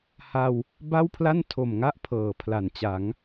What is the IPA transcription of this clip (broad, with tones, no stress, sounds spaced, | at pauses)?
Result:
h a˧ w | b a˥˩ w pʰ l a˥˩ n tʰ o˨˩ m ŋ a˥˩ ʔ pʰ ɤː˩˦ pʰ l a˩˦ n t͡ɕ a˩˦ ŋ